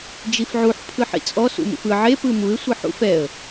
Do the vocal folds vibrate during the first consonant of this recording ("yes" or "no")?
yes